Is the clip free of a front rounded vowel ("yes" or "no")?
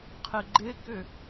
no